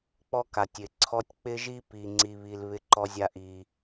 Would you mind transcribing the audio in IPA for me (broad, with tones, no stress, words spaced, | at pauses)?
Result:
k͡pɔ˦ka˨tʲ ɪ˨ǀʰɔ˦tʲ k͡pɪ˦ʒi˦ pi˦ŋ͡ǀi˦βi˦l βɪ˦ǃɔ˦ zʲa˦ʔi˨